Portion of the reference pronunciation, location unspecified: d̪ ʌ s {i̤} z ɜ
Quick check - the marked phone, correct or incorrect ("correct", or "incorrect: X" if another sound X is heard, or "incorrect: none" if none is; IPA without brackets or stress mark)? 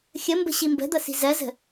correct